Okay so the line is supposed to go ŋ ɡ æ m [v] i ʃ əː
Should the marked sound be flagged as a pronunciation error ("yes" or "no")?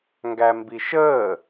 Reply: yes